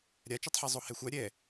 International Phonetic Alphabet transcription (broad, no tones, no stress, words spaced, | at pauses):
ɾʲat͡ʃutˤħe zˤohɛxʷa ɾʲɛ